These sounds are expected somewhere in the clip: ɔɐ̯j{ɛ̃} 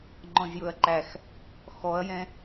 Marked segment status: correct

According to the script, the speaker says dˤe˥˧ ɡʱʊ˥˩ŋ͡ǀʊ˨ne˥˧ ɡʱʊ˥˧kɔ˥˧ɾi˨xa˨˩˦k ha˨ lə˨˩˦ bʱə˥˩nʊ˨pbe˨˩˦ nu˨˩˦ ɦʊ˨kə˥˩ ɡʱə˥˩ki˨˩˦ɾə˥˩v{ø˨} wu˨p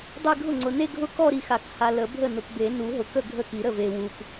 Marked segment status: incorrect: e˨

